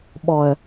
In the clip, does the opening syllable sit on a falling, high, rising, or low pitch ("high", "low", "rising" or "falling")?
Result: low